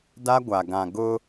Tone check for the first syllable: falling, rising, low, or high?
high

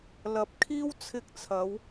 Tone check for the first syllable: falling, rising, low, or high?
rising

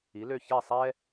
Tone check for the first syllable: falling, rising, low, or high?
rising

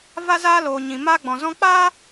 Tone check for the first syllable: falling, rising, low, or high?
high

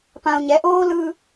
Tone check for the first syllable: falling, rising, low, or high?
low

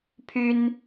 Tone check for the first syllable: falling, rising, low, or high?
high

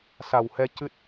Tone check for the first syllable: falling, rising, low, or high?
low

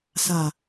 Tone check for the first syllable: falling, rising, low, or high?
low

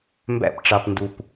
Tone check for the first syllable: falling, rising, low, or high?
falling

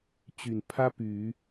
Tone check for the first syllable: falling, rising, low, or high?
low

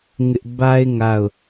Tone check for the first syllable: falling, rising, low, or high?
high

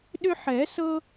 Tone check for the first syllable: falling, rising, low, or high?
high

